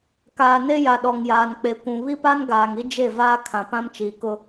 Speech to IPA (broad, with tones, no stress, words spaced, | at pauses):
kaː˨ne˦ ja˨ɗɔ˨ŋjaː˨n k͡pe˨kʷũ˨ βi˦pa˦nɡaː˨ŋi˦ d͡ʒe˦˨vaː˦kʰã˨ pã˦mt͡ʃiː˨kʊ˦